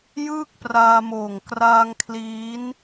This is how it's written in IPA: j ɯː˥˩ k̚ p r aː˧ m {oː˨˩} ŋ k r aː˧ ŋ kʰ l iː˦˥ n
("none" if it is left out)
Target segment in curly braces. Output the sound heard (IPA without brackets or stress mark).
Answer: oː˨˩